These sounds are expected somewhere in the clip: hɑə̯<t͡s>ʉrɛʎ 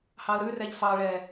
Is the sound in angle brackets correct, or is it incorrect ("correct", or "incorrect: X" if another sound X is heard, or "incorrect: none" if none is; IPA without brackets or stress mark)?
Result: incorrect: ɾ